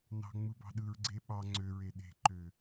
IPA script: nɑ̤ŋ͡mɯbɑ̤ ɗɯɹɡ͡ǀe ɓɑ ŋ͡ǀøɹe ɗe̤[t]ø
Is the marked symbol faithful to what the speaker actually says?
no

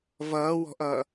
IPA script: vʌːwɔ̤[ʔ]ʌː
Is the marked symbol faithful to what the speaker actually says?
yes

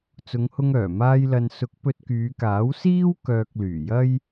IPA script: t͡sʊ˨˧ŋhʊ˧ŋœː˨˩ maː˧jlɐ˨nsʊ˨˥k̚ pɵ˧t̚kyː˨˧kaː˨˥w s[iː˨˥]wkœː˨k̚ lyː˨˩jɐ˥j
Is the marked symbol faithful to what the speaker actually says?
no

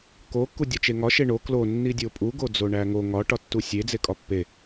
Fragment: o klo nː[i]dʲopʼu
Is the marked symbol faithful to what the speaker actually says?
yes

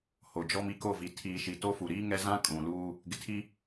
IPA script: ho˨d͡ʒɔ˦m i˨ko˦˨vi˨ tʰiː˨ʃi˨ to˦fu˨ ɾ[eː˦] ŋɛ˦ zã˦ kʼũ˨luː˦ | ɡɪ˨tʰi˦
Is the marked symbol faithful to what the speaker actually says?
no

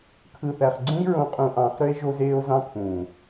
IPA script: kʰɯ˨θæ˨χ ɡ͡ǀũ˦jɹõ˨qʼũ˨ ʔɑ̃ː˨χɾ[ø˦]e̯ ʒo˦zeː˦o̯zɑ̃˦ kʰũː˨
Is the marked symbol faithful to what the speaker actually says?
yes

